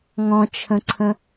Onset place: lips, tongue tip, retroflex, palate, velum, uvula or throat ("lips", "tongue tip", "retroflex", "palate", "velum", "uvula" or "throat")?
velum